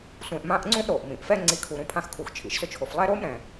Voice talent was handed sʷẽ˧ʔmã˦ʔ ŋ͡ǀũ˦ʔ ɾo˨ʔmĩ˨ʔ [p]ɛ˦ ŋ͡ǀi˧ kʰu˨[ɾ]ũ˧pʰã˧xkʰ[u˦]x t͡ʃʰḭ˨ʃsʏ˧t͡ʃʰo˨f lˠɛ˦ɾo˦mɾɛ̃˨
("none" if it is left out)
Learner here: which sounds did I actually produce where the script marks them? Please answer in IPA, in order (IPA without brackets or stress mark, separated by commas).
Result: f, ɾ, u˨